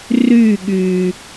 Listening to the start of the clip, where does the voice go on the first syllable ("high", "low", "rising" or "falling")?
falling